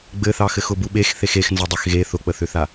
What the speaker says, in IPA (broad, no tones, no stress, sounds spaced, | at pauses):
ɡ͡b ɘ θ ɑ x ɘ x ʊ b u ɓ e x θ e x e x n z ə dˤ ɘ x ɣ e θ ʊ k͡p ə θ ʏ θ a